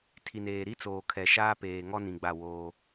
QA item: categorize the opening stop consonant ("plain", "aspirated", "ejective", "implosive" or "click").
aspirated